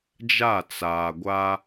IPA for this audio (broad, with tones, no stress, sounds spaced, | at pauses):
d͡ʒ a˦˨ t͡s aː˨ ɡʷ a˦